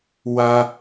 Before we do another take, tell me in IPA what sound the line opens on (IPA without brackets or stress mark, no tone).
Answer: w